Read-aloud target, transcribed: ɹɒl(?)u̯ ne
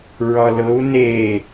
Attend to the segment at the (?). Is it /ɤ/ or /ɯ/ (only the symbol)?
ɤ